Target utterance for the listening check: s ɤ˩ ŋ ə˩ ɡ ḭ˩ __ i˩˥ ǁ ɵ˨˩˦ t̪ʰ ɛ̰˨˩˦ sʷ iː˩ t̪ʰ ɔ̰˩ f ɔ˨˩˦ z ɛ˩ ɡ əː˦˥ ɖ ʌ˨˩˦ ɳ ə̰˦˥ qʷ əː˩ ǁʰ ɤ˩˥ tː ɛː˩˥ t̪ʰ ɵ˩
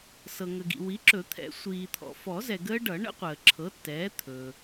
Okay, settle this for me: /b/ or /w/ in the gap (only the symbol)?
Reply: w